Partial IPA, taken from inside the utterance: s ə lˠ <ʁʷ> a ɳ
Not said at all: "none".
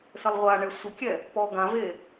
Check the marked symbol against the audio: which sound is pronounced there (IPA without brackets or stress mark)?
ʁʷ